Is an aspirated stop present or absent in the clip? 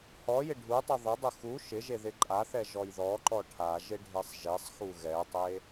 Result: present